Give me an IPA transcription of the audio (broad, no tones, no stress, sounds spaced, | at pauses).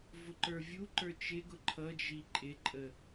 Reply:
v ʊ ǃ ə˞ vʲ u ǃ ə˞ t͡ʃ ɪ ɡ ʊ ǃʰ ʌ d͡ʒ i ǃʼ ɪ ǃʼ ə